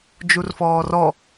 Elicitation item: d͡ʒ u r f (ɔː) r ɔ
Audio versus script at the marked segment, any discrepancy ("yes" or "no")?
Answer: no